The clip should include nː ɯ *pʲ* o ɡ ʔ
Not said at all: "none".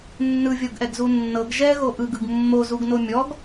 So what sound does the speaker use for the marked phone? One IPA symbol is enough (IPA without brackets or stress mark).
vʲ